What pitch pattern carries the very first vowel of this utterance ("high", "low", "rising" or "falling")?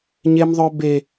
high